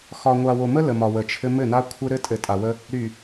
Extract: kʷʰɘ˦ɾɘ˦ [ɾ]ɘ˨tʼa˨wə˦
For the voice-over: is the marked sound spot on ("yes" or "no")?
no